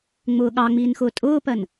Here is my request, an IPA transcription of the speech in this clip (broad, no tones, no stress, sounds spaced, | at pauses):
ŋ͡m ʊː ɠ ɑ ŋ͡m iː n x ʊː tʼ ʊː p ɜ n